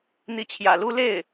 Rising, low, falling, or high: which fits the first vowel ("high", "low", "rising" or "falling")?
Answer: rising